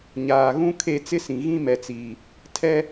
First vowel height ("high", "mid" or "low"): low